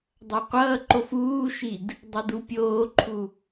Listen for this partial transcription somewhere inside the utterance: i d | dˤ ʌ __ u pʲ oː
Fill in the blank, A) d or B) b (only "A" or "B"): A